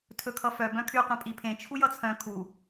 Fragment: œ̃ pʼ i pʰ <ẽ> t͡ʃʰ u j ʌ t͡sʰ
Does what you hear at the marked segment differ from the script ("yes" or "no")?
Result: no